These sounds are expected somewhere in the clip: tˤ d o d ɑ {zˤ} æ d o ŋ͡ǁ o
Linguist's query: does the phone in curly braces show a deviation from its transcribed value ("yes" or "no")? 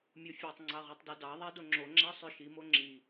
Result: yes